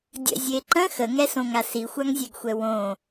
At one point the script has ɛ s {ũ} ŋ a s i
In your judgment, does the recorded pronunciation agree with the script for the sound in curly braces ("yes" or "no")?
no